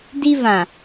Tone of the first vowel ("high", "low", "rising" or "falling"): high